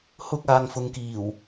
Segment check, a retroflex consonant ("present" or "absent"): absent